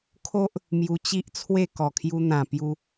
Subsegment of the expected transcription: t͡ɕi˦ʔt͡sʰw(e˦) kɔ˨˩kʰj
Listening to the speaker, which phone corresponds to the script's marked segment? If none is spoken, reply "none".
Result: e˥˧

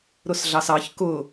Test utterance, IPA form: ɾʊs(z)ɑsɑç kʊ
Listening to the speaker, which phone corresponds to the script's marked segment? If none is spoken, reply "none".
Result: ɮ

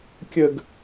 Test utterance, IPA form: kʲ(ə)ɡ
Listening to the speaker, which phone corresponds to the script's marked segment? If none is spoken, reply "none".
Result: ə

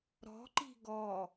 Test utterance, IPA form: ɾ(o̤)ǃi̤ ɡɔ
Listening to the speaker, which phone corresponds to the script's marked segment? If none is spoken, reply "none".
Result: ɔ̤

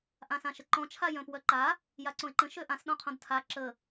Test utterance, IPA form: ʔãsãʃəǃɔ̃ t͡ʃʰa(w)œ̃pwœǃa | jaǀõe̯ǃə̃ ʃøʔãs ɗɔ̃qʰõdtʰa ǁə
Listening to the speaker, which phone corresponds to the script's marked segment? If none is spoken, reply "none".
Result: j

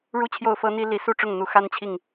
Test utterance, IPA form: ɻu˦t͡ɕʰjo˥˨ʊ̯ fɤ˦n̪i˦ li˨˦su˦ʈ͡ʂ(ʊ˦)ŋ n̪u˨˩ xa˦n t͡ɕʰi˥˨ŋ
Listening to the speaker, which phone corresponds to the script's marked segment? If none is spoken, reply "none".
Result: ʊ˥˨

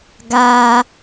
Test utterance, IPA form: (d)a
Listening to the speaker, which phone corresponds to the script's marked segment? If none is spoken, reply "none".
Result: ɡ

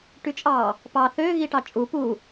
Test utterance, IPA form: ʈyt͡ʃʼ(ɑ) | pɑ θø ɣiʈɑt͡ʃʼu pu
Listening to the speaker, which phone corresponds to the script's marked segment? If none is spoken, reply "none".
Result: ɑ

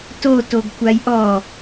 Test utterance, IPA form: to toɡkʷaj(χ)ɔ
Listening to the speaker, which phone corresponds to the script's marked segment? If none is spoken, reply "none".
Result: ʔ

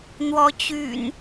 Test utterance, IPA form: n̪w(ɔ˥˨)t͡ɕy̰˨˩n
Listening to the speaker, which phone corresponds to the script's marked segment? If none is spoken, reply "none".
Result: ɔ˨˦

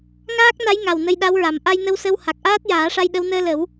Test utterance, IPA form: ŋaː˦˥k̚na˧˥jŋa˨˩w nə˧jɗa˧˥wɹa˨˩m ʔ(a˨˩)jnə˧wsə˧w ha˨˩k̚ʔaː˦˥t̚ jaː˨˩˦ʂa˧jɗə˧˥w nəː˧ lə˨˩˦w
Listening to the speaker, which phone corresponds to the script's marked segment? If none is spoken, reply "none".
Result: a˧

